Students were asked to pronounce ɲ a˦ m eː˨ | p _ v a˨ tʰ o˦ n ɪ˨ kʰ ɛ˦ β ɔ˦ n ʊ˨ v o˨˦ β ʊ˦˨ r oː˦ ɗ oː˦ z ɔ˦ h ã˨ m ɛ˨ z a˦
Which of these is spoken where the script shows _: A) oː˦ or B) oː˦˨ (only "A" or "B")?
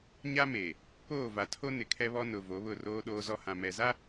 B